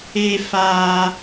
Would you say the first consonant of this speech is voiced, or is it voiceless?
voiceless